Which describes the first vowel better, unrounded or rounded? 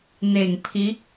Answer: unrounded